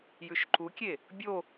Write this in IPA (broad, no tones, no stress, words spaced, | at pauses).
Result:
jʉʃǃukʲe | bʲo